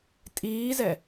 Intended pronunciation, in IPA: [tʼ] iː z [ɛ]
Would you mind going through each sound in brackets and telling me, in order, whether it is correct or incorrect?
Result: correct, correct

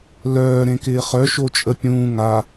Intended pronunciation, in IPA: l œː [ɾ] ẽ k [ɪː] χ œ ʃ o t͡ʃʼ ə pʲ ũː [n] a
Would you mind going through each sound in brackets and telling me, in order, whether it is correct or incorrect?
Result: correct, correct, incorrect: ŋ

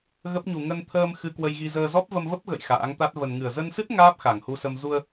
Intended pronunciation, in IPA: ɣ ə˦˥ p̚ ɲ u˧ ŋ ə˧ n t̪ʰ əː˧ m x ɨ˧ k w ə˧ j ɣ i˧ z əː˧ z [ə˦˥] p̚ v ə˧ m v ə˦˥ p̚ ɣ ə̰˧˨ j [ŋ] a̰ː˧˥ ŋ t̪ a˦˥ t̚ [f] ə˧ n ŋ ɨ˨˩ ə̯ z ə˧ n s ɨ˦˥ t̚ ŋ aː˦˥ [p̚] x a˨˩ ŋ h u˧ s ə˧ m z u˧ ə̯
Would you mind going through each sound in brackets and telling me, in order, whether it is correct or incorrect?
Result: incorrect: ɔ˦˥, incorrect: x, incorrect: v, correct

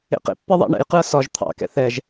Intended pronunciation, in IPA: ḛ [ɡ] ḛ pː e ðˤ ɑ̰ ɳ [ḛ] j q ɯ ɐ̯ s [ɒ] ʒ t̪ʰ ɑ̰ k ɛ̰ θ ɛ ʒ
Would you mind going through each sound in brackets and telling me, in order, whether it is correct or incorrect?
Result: incorrect: q, incorrect: ɛ̰, correct

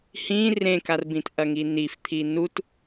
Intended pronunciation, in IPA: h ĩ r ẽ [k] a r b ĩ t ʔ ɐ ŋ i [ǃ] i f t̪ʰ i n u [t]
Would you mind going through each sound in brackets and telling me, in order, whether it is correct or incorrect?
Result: correct, incorrect: n, correct

